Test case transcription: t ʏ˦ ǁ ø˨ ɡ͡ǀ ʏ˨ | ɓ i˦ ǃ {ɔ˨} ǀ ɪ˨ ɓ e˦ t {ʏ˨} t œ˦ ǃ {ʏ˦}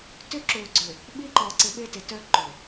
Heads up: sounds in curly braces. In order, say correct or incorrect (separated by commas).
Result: correct, incorrect, incorrect